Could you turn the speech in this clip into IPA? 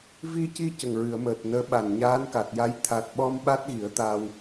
vi˧ci˧ cə˨˩ŋɹɨ˨˩˨ə̯ məː˨˩t̚nəː˧˥ɓa˨˩n ɲaː˧˥nka˨˩t̚ja˧˥j t̪ʰa˨˩t̚ɓɔ˧m ɓa˦˥t̚ɣi˨˩˦ə̯t̪aː˧w

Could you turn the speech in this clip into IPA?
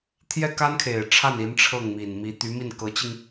t̪ʰjɛ˥˩ka˥nkʰe˨˩ɪ̯ʈ͡ʂʰa˥˩n i˧˥nʈ͡ʂʰɤ˥˩ŋmi˨˩nmi˧˥ t̪y˧˥mi˥˩nkɤ˧˥t͡ɕi˧ŋ

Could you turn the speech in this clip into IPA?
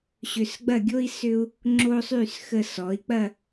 ɕʏ˧s ɡ͡bɐ˥˧ ɡʲo˥i̯ sʏ˥u̯ | ŋ͡ǁo˥sˤy˥˧s xə˧sɔ˩˧i̯k͡pɐ˥˧

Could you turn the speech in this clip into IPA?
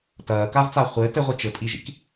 tɐːkavt͡sa χʷɘːt ɘʁʷi t͡ʃɘpʼiʒḭk

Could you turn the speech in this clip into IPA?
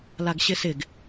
laɡɕɪsɪɡ

